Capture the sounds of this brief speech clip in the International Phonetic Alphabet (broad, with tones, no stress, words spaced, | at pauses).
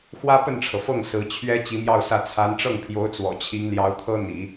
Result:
xwä˥pə˥˩nʈ͡ʂʰɤ˩fɤ˥˩ŋ sɹ̩˧˥t͡ɕʰɥɛ˥ t͡ɕi˧˥mjɑ˥˧ʊ̯sä˥˩ t͡sʰa˧˥nʈ͡ʂɤ˥˩ŋpʰjo˧˥ʊ̯ t͡swɔ̰˨˩t͡ɕʰi˧˥ŋljɑ˧˥ʊ̯t̪ʰɤ˥ n̪ḭ˨˩˦